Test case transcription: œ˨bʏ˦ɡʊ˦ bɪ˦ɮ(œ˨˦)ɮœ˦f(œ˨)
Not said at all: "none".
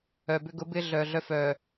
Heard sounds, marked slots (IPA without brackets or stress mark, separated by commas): œ˨, œ˨